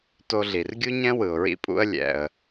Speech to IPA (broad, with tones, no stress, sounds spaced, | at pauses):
t o˧ ɮ i˩ r ɡʲ u˥ ɲ ɛ̃˥ w ɯ˩ ʊ̯ ɹ ḭ˧ pʼ ṵ˧ ə̯ lʲ ɛ̰˩ ə̯